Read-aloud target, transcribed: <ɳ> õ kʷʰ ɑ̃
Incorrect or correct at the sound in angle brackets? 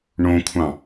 correct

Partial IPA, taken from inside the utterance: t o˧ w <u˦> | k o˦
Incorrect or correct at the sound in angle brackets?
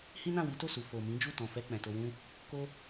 incorrect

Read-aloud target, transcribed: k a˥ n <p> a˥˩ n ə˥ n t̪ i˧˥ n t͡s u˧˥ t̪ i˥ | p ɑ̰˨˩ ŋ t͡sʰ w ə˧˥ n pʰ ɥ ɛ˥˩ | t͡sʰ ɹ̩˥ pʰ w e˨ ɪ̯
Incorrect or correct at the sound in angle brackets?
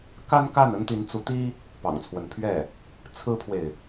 incorrect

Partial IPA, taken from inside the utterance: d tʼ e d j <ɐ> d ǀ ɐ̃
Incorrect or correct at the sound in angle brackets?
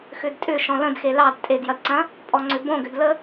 correct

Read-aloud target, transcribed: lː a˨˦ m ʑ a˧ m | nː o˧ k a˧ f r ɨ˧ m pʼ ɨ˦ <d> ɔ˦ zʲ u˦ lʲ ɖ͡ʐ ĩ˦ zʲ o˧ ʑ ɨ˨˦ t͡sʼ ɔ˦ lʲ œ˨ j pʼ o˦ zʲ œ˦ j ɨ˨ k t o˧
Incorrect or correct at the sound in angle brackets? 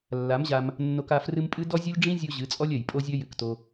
correct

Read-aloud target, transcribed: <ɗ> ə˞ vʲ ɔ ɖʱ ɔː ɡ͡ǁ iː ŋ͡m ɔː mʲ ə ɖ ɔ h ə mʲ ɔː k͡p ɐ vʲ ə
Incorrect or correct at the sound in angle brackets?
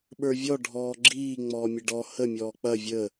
incorrect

